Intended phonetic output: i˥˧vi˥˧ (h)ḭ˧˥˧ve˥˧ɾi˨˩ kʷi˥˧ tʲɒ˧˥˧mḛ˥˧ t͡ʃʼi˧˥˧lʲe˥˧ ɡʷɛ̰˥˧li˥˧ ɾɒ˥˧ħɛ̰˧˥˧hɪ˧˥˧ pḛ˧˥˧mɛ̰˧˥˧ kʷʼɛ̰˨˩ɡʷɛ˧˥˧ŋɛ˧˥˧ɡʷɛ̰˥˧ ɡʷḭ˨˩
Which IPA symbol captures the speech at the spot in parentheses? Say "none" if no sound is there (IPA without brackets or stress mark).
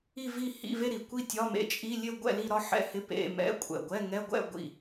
h